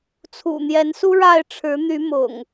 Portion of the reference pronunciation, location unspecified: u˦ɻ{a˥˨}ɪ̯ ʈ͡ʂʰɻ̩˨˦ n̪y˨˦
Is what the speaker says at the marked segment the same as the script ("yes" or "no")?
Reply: yes